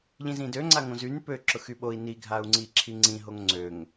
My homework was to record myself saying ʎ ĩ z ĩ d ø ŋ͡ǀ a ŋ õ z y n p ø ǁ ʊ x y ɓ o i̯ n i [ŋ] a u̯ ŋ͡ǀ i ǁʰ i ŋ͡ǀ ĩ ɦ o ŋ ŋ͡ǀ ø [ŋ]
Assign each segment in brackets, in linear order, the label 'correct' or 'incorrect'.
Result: incorrect: ɡʱ, correct

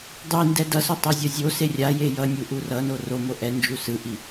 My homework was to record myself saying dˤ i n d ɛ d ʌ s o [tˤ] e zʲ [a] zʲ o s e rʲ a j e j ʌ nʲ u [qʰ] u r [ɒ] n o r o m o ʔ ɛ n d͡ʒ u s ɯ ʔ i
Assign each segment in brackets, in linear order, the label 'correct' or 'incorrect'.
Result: correct, incorrect: ʌ, incorrect: ʔ, incorrect: ʌ

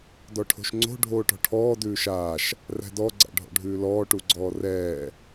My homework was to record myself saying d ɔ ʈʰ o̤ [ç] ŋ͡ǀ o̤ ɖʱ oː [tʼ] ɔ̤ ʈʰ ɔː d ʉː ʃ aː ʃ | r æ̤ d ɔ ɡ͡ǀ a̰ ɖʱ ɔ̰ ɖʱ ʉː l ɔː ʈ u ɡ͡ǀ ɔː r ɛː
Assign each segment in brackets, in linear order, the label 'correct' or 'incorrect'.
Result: incorrect: ʃ, incorrect: ʈ

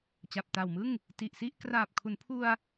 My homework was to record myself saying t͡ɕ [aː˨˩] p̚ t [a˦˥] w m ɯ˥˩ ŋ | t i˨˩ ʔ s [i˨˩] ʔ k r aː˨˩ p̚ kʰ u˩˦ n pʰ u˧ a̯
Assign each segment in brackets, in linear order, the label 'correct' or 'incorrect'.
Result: incorrect: a˨˩, incorrect: a˨˩, incorrect: i˥˩

